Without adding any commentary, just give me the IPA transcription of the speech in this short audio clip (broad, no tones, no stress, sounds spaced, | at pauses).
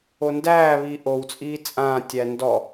o n d æː β iː ʔ o w t͡sʼ iː t͡sʼ ãː tʲ æ n d ɔ